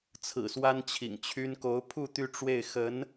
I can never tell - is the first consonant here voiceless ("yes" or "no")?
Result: yes